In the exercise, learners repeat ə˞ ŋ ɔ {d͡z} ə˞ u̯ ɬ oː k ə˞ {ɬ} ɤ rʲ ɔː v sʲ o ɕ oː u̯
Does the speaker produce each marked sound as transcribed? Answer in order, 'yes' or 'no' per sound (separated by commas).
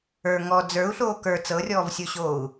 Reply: yes, no